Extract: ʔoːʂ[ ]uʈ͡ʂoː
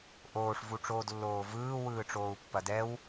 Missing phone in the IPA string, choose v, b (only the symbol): v